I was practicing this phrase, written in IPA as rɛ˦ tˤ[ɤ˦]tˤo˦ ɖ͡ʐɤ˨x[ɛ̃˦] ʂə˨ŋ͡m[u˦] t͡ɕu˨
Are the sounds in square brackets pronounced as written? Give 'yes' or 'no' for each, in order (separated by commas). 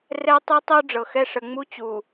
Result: yes, no, yes